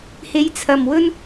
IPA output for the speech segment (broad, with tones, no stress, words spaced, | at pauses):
he˨˧jt͡sʰɐ˨m wɵ˥n